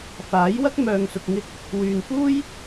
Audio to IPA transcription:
faː˨˥jwɐ˥k̚ mœː˨ŋsʊ˨k̚ŋɪ˧k̚ | wyː˨nfuː˥j

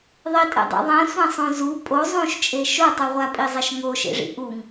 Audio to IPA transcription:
ðˤitʼɛ̰dˤɛ̰ ðˤɛ̃sʷɛ̃sˤõ zu pʼo zˤũʃt͡ʃʼe ʃotˤu ʁʷapʼizˤɛʃ ŋoʃḛʐḭ ʔuŋ

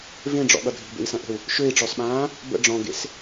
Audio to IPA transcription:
vẽɖ͡ʐɔ̰ɠʌ dʱi̤bḛi̯sɐ̃ʔə̤u̯ | ʃøi̯ʈ͡ʂɔsɓãː | bə̰ ɖ͡ʐɔ̃ɡḛs

